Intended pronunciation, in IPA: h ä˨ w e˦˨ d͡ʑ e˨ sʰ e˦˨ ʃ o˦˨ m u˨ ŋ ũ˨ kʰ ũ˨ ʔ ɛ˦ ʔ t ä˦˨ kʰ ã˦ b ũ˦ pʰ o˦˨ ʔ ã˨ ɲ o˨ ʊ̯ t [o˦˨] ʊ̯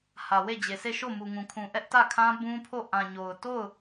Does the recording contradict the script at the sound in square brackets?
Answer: no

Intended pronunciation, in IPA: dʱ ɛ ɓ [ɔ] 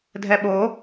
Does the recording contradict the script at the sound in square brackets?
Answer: yes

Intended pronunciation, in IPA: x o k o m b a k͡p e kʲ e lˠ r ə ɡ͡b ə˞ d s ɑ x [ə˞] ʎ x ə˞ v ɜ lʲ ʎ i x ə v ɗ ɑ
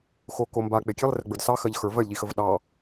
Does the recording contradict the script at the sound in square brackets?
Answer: yes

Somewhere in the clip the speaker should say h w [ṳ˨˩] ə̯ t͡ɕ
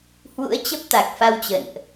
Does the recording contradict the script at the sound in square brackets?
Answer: yes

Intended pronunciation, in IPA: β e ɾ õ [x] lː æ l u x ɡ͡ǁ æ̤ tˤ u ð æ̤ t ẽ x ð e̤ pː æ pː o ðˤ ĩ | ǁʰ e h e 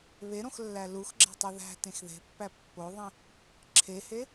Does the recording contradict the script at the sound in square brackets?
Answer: no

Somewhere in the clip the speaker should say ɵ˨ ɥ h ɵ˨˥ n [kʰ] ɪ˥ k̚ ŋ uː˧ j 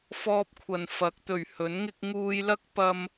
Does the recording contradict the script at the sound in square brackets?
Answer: yes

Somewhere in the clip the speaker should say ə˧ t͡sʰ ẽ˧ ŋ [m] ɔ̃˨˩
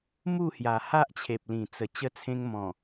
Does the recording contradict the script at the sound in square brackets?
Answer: no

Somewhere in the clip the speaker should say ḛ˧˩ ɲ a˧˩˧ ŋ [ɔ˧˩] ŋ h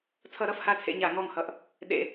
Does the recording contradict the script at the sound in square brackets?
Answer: no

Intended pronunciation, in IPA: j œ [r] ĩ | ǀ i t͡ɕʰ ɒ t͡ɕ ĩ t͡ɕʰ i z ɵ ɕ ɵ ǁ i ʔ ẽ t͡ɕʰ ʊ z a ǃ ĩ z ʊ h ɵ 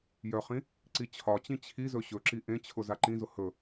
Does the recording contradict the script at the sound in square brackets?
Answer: yes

